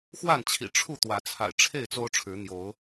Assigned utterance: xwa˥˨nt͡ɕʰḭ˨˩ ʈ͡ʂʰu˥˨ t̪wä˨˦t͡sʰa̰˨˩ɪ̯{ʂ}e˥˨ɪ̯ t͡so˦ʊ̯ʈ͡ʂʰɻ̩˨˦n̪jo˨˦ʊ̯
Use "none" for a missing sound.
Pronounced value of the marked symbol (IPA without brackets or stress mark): ʈ͡ʂʰ